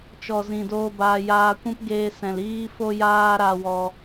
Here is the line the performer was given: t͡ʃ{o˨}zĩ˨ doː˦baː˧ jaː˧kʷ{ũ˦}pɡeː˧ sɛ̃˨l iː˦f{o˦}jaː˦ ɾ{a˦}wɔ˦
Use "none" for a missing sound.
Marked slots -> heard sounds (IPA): ɔ˨, ũ˦, o˦, a˦

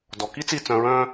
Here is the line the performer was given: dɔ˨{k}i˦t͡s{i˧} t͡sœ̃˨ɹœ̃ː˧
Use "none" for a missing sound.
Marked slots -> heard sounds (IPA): k, i˧

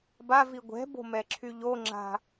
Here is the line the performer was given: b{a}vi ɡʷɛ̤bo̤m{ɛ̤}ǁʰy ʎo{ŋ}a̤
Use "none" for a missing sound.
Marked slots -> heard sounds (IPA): a, ɛ, ŋ͡ǁ

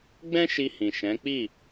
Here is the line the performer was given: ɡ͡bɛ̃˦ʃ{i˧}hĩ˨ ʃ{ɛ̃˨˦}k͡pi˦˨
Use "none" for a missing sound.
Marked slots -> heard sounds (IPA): i˧, ɛ̃˨˦

